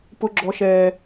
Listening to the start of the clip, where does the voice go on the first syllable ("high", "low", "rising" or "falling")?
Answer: low